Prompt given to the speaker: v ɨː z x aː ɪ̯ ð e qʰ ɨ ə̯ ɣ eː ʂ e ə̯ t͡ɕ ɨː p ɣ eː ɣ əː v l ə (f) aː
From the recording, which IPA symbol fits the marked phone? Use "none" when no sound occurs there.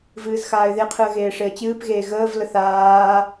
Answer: θ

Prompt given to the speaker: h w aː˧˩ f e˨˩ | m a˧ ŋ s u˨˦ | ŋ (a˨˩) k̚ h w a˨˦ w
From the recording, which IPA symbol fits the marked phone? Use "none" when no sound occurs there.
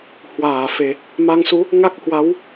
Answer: a˦˥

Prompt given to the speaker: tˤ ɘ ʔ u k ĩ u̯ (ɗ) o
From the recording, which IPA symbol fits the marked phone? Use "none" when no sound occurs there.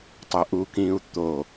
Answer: t̪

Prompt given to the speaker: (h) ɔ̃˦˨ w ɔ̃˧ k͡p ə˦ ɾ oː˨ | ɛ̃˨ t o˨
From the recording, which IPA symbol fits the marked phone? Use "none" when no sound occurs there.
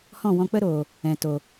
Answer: h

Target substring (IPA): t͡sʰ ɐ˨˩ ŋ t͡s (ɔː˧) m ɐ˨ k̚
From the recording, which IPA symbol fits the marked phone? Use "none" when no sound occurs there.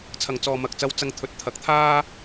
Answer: ɔː˨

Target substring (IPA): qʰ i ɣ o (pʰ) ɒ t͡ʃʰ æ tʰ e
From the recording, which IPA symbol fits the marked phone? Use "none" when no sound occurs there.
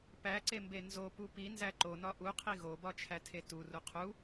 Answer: b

